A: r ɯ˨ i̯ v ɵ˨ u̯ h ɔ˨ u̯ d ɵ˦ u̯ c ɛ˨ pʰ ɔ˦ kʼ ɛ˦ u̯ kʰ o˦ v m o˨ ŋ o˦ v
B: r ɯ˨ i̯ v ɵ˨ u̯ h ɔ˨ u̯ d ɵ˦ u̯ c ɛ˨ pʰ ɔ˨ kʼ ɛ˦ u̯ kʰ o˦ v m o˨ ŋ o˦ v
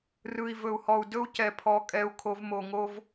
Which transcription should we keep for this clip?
A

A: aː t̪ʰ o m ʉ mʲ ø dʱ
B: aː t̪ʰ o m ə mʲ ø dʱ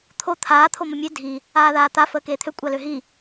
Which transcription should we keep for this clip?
B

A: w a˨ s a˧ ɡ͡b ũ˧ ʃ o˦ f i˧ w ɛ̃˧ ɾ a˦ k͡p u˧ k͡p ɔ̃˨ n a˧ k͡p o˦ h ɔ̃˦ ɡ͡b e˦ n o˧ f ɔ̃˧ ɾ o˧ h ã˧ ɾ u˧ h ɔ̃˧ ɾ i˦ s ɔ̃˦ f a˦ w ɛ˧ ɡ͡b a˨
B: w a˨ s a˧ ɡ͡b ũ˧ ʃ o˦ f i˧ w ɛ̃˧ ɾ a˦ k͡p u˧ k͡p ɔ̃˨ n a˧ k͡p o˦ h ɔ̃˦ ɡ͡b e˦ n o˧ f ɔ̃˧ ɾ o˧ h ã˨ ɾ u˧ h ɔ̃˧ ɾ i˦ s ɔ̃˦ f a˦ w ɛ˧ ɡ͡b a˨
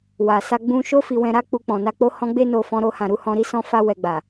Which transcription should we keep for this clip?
B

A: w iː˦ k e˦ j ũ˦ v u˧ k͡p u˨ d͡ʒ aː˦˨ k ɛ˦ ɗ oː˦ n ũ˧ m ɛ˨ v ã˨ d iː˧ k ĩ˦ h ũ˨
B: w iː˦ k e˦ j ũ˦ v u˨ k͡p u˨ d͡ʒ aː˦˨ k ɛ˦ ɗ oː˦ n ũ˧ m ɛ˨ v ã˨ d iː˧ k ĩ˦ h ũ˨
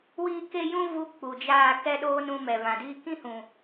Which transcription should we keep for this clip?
A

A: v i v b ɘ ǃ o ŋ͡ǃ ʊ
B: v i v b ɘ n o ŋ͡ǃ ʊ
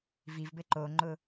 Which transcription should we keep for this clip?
A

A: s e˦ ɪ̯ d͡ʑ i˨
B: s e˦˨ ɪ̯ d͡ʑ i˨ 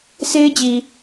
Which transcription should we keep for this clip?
A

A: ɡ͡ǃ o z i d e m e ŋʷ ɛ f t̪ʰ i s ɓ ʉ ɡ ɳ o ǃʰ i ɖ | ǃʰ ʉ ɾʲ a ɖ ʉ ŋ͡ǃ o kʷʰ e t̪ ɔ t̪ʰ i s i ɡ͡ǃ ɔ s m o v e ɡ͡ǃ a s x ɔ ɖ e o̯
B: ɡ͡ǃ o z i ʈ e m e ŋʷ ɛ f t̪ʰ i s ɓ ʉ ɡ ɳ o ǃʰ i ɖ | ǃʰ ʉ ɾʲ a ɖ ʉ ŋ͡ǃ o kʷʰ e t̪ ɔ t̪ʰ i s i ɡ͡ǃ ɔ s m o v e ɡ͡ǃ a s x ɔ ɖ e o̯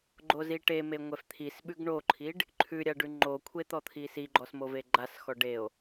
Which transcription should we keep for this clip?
B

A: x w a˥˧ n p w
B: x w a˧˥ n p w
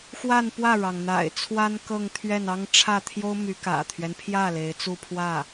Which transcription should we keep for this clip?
A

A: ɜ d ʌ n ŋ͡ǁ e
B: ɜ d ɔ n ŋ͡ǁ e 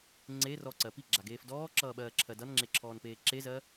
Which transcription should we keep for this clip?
A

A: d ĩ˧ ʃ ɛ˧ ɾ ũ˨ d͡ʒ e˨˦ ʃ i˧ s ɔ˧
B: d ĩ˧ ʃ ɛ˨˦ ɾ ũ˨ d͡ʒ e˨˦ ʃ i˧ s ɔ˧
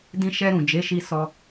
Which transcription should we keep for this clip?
A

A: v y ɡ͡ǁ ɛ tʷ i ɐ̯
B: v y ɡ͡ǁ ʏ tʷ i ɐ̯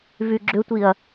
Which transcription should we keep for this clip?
B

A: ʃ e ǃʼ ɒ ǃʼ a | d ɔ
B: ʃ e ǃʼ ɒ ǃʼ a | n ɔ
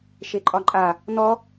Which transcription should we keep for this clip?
B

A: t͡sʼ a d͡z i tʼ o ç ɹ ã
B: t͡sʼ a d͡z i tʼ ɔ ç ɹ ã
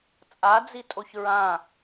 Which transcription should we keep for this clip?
A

